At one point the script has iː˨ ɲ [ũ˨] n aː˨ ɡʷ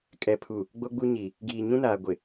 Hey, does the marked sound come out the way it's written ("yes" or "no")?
no